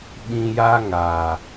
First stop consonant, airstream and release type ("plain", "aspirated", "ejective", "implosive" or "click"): implosive